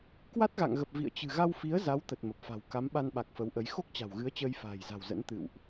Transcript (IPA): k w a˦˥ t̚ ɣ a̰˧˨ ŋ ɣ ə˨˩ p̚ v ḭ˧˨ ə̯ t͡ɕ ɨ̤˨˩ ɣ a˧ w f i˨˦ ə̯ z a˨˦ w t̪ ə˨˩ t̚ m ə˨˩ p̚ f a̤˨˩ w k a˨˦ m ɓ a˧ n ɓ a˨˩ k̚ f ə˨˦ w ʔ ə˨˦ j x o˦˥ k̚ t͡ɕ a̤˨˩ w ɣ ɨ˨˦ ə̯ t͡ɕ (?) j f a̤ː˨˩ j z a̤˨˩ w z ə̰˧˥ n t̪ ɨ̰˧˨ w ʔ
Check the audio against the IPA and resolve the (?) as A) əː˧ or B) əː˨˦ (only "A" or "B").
A